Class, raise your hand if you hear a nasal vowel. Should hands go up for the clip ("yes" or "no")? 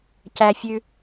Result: no